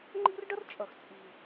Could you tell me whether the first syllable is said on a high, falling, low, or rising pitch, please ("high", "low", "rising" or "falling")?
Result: high